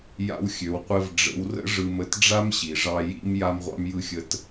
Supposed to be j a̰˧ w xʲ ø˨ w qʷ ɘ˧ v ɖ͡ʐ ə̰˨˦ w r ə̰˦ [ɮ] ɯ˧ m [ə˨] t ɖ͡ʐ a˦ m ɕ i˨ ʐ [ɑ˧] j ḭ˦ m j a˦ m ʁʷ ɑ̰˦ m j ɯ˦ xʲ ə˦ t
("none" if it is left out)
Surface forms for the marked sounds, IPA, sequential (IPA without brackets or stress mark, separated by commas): ʐ, ə˦, ɑ˧